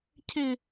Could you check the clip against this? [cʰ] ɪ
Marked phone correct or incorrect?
correct